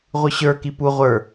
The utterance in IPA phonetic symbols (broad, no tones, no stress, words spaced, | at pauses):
ʁʷɯɕə˞ kipu ʁʷə˞